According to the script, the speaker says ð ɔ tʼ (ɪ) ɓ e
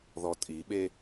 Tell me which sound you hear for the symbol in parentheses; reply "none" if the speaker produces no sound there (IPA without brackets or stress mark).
i